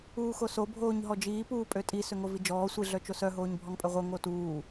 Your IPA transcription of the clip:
uː x o s o bʱ oː ɲ ɦ ɔ d͡ʒ iː p uː pʼ ø tʼ i s ø ŋ o v i d͡ʒ ɔː sʷ i ɮ œ t͡ʃ o s œ ɦ oː ɲ bʱ ɔ ŋ pʼ œ ʁʷ œ ŋ o t uː

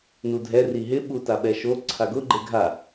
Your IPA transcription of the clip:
n u dʱ ɛ r i ɦ ɪ ɓ u t a ɓ ɛ ʃ o ǀʰ a ɡ ʊ ɡ͡ǃ e ɡʱ a

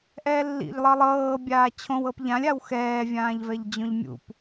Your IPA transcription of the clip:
ʔ ɛː lː ḭ ʎ lˠ ɤ lˠ ɤː bʲ aː t͡ɕʰ õ w ɤ p ʎ ã lʲ a w x ɛː vʲ ãː ʎ v ɛ ʎ d͡ʑ õ ʎ mʲ ṵ p

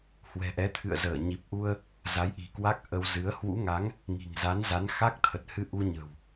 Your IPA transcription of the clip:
h w ɛ̤˨˩ ʔ ɛ˨˦ t̪ʰ ɨ̰˧˨ ə̯ z əː˧˩ ɲ i˨˩ p̚ ʔ u˧ ə̯ | z a˨˦ j ʔ i̤˨˩ k w a˦˥ k̚ ʔ ə˧ w z ɨ˨˦ ə̯ h w ṵ˧˥ ŋ a˨˦ ŋ | ŋ i̤˨˩ ŋ z a˨˦ n z a˨˦ n x a˦˥ k̚ t̪ʰ ə˨˩ t̚ h ɨ˧ ʔ u˧ ɲ ə̤˨˩ w

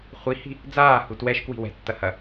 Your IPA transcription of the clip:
χʷ i h i̤ | d͡z aː h u t w ɛ ʃ k w i̤ w ɛ̤ tː ɐ h ɐ

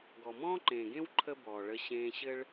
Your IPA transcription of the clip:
ɡ ɔ˨ m ɔ̃ː˦ ǃ ẽː˨ ɡ ẽ˦ w ǃʰ ə˦ b ɔː˨ ɭ ə˧ ɕ ẽː˧ ɕ ɘ˦ ɭ

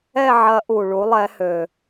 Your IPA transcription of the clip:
ɛ˦˨ ʕ ɐ˨˥ ʔ u˩ ɭ u˨˥ lˠ ɛ˨˥ h ø˩

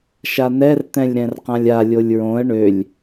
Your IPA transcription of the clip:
ʃ a n ɛ r t̪ ɛ̃ lʲ ɾ ɛ̃ r q ã lʲ a lʲ o lʲ ɹ õ ə̯ ɳ ø lʲ

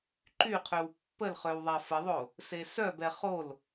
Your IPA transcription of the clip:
ǃ y qʰ ø w pː ə l χ ø w ðˤ a f ə ðˤ o | s e s œ b ɛ χ o l

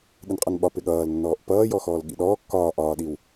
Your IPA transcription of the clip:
ɗ ɪ n qʼ ʌ n ɓ ɒ p ɪ ɠ ʌː l nː ɔː ʔ p ʌː j ɔ x ɔː l ɠ ḭ ɗ ɔː kː ɒː ʔ ɒː ɗ i w

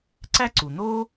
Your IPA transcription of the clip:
ǀ æ˥ ǀ u˩ n̪ o˥

